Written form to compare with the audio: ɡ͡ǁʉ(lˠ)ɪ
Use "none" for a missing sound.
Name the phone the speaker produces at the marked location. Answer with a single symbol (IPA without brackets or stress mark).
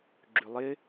lˠ